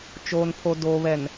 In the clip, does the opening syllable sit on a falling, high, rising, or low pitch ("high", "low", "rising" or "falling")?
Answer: low